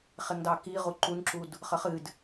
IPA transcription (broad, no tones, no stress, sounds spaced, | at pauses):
χ e ŋ d ɑ k i ʁ u ǃ u n ǁ u d | χ ə χ ɨ d